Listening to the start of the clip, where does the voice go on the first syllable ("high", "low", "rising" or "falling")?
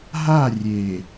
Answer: falling